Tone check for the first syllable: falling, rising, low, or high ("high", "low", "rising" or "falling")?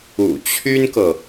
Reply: low